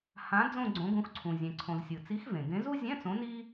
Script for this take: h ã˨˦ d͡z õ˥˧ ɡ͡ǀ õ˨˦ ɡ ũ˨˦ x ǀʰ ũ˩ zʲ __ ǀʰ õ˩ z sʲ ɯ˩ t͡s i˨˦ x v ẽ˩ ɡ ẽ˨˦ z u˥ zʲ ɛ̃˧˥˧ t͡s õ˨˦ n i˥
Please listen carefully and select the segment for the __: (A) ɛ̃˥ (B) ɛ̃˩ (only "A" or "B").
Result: B